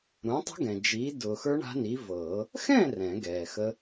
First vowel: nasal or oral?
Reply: nasal